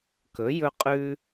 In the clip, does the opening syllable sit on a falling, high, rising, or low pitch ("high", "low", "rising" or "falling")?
rising